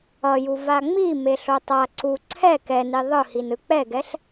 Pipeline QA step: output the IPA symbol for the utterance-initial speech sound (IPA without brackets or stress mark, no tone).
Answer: ʌ